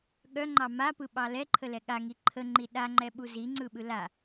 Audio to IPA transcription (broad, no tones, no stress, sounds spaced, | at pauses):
ɠ œ ŋ͡ǃ ɑ m a p ɯ ɓ ɑ l ɛ ǃʰ ə l ɛ ɠ a ŋ i ǃʰ ə ŋ͡ǃ i ɗ a ŋ͡ǃ ɛ ɓ u z i ŋ͡ǀ ɯ ɓ ɯ l a